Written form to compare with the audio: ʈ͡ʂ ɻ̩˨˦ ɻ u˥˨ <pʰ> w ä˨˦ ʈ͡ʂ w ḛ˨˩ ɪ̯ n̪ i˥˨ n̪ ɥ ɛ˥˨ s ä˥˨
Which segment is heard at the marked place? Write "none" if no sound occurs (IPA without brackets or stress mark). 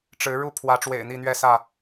pʰ